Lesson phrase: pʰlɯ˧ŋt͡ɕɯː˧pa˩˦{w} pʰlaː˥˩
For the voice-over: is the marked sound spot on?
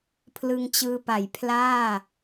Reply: no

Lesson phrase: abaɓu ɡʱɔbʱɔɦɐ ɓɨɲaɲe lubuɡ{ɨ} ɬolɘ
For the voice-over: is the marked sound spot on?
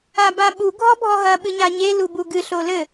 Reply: yes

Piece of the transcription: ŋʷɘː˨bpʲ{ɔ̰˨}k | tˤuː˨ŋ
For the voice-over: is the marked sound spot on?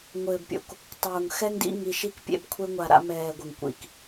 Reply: no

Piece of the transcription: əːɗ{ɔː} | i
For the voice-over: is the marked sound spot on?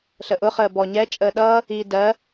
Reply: no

